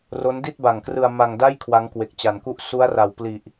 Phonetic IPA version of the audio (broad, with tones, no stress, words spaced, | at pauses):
ro˦˥ndi˥˩t̚ba˨˩ŋkrɯ˧a̯ ma˧ŋda˥˩j kʰwa˦˥ŋkwe˨˩k̚t͡ɕa˩˦nku˥˩ʔ su˦˥a̯ra˨˩wpli˨˩ʔ